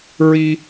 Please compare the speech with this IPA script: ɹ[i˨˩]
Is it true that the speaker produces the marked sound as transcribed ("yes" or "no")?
no